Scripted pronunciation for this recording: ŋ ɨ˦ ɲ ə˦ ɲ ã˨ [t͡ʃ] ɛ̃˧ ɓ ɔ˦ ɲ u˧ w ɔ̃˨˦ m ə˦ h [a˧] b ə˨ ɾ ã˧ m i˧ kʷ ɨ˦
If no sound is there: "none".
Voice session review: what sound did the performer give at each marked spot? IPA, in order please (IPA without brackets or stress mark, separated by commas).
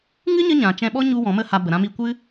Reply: t͡ʃ, a˧